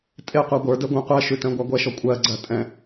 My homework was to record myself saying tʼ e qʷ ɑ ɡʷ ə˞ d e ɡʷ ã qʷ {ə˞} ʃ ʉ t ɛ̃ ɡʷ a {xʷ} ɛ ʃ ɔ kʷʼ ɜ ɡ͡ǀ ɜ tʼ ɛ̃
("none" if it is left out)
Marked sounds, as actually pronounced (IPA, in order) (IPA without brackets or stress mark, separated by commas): ɜ, ɡʷ